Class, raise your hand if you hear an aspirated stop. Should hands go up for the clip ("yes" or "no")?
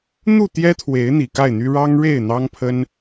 yes